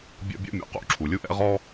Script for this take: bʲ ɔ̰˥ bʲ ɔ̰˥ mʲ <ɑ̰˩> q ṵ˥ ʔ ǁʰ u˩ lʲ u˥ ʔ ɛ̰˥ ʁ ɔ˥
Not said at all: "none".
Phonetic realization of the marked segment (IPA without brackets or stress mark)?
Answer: ɔ̰˩